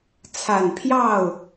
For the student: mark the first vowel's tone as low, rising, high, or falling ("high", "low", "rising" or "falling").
low